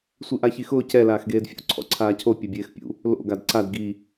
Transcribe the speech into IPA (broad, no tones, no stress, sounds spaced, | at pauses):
sʷ i ʔ a ç i x ʊː c ɛ l aː x ɡ eː d fʲ o̰ ǀʰ ɔ̰ ǀʰ aː cʰ o pʲ ɛ bʲ eː x pʲ ṵ | l o̰ ɡ a d ǀ a d ɡ i